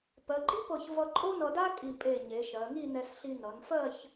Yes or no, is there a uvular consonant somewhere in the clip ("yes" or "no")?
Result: no